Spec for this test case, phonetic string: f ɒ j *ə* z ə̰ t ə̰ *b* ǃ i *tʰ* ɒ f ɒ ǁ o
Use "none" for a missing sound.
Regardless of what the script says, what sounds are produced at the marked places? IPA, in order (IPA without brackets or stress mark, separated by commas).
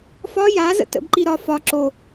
a, b, ɾ